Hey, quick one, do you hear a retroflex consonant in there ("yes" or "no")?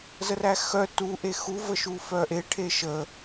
yes